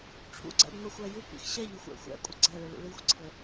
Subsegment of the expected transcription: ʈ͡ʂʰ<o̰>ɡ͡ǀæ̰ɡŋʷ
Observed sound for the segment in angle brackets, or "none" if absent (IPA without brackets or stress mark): ṵ